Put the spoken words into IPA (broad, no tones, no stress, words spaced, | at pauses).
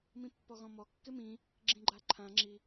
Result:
mĩpːɔɣɔ̃mɔ kːɪmĩ | ɡ͡ǁĩɡ͡ǃaǃʰã ŋ͡ǁi